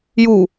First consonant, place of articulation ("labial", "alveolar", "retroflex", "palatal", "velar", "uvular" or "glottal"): palatal